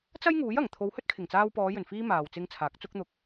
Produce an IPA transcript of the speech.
t͡s ɐ˥ j ŋ uː˨˥ j ɐ˨˩ ŋ t̪ʰ o˨˧ w h ɵ˥ t̚ kʰ ɪ˨˩ ŋ t͡s aː˧ w p ɔː˨˧ j ɵ˨˩ n f iː˧ m aː˨ w t͡s ɪ˧ ŋ t͡sʰ aː˨˥ k̚ t͡s ʊ˥ k̚ n̪ ʊ˧ k̚

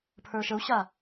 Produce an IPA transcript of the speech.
pʰ ə˞ ʃ ə u̯ ɕ a

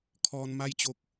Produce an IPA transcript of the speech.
kʰ ɔː˧ n m a˥˨ j t͡ɕ o˧ k̚

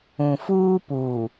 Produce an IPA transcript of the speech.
ũ˨ f uː˦ p uː˨

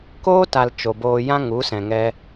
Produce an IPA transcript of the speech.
k oː˦ t a˧ l t͡ʃ o˨ b oː˧ j ã˦ ŋ u˨˦ s ɛ̃˨ ŋ ɛ˧

